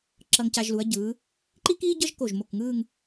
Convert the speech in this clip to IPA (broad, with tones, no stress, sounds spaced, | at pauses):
ǁ ʌ˧ ŋ c a˧ ʒ l u˩˧ ɐ̯ ɟ ɯː˩˧ | ǃ i˥ k iː˥ ɟ ʌ˥ ʒ k o˧˩ ʒ m o˧˩ k ŋ ɯː˥˧ ŋ